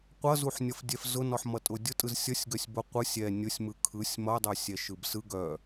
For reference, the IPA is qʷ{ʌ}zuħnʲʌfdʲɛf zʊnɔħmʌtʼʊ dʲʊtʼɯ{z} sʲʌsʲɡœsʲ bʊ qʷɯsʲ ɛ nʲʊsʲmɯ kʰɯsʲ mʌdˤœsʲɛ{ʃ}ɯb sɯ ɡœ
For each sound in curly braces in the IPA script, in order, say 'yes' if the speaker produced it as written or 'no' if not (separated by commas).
yes, yes, yes